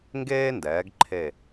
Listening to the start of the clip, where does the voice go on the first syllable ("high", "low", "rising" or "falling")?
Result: high